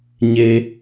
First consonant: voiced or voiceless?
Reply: voiced